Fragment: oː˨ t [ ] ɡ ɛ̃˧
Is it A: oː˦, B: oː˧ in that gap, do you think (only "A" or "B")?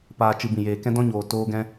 B